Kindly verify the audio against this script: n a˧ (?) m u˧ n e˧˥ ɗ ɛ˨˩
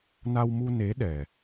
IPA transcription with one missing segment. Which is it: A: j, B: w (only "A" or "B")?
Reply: B